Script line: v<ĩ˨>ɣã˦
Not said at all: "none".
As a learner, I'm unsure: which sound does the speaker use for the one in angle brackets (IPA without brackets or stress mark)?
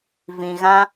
ĩ˨